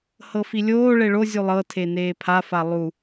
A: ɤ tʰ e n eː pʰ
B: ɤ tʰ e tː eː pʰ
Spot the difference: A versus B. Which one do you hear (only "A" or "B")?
A